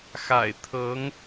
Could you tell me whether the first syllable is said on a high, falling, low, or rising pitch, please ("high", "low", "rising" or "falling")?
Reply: low